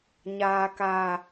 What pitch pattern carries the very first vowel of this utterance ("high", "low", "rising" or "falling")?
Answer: low